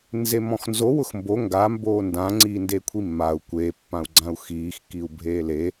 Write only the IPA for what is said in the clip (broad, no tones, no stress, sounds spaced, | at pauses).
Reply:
n z e m ɔ̃ x n z o w ʊ x m b o ŋ ɡ a m b oː n d ã ŋ͡ǀ iː n d e kʷʰ i mː a u̯ kʷ e pː ã u̯ ɡ͡ǀ ã u̯ x iː x k i u̯ bʱ eː l e